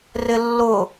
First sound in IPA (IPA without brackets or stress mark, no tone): r